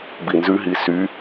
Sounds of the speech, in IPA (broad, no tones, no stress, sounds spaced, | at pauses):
b i n z ʉ ɦ i s y